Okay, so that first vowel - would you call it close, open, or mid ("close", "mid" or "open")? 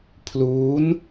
close